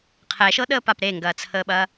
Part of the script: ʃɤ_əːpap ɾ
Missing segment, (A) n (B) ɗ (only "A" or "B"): B